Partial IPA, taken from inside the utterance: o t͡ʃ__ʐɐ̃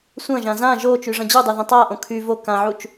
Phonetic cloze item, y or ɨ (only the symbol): y